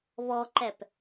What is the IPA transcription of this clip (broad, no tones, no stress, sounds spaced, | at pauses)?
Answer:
β ɔ ǃ ɛ p